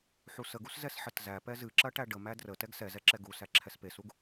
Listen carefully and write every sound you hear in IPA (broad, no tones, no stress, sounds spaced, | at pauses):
ħ u s ə ɡ u s z ɛ s ħ ə t z æ p ɛ z ɨ ǁ ɐ ʈ æ ɖ ə m æ d r ə t ɛ ɡ s ɛ z ɛ ǁ ɛ ɡ u s æ ǁʰ ɛ s p e s u ɡ